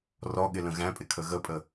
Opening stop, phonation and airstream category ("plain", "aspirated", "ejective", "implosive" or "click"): implosive